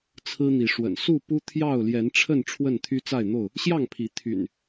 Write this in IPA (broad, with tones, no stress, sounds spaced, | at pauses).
t͡sʰ ɹ̩˦ n̪ i˨˦ ʂ w ə̰˨˩ n s u˥˨ p u˦ t̪ʰ j ɑ˥˨ ʊ̯ l j ɛ˨˦ n ʈ͡ʂʰ ə˥˨ n ʈ͡ʂʰ w ə˥˨ n t̪ʰ y˦ t͡s a˥˨ ɪ̯ n̪ o˥˨ ʊ̯ | ɕ j ɑ˥˨ ŋ pʰ i˨˦ t̪ʰ y̰˨˩ n